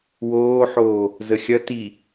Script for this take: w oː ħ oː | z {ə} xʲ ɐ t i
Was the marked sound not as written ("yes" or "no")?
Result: no